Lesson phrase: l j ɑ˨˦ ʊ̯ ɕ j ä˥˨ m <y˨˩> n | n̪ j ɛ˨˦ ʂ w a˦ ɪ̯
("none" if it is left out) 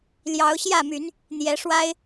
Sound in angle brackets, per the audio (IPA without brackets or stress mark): y˨˦